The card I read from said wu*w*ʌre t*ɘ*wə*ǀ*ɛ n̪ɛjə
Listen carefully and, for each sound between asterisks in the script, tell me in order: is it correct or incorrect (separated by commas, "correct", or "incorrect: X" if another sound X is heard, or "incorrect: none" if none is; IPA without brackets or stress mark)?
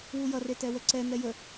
incorrect: j, incorrect: ɛ, correct